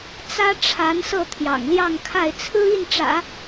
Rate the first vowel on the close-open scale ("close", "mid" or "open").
open